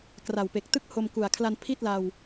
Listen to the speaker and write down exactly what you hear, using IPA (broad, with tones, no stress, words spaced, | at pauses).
kra˨˩wpe˨˩k̚tɯ˥˩k̚ ho˧mku˨˩a̯kʰla˧n pʰi˥˩t̚la˧w